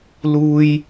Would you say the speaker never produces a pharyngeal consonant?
yes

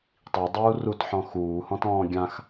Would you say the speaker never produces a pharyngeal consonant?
no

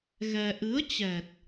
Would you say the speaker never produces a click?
yes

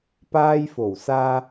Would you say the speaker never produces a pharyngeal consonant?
yes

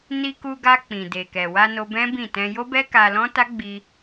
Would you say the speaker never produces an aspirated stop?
yes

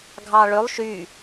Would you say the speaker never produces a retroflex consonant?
no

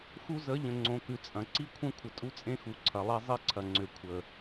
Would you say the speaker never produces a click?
no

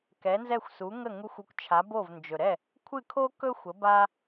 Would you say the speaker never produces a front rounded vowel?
yes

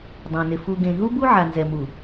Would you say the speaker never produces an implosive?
yes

